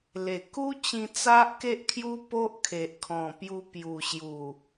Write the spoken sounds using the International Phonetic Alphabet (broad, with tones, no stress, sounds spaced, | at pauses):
l e˨˩ k u˦ t͡ɕ ĩ˧ t͡s a˦ ʔ k e˦ ʔ kʰ j u˦ p o˦ ʔ kʰ e˨ ʔ kʰ ɔ̃˨˩ p j u˧ p j u˨˩ ɕ j u˨˩